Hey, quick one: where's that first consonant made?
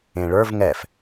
retroflex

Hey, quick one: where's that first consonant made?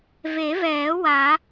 lips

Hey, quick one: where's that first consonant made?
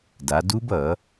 tongue tip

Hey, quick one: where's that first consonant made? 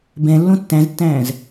lips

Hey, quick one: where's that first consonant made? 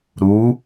tongue tip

